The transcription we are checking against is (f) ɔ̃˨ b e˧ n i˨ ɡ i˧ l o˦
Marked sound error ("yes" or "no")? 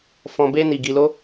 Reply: no